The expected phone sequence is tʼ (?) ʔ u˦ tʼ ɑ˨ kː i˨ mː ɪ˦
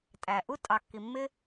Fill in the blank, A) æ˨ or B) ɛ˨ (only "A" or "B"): A